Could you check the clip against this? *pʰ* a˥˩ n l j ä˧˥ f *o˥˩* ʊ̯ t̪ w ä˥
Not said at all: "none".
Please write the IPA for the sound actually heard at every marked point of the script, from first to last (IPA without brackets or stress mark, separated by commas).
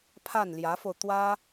pʰ, o˧